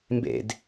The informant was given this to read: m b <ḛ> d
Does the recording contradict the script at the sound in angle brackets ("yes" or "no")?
no